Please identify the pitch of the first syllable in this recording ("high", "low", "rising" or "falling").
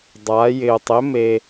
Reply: rising